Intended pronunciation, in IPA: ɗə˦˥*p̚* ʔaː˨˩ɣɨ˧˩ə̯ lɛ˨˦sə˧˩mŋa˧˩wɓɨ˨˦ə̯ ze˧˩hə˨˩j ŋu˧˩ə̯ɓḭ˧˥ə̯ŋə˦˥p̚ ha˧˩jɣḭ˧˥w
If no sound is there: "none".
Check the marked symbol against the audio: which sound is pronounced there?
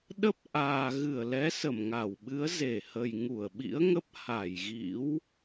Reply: p̚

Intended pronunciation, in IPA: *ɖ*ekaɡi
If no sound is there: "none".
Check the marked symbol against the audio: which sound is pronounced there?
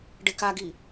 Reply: ɖ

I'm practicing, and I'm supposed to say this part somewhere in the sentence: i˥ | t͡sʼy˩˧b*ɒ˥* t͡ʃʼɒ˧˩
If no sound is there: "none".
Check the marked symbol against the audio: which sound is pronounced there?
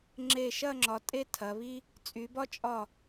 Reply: ɒ˥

